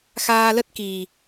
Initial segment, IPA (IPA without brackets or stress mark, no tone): x